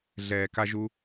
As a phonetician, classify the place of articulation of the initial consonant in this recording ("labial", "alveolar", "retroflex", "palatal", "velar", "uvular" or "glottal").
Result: alveolar